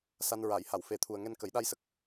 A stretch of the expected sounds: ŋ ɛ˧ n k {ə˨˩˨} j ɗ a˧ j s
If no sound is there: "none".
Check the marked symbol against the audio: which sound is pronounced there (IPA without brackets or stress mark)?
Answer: ə˨˩˦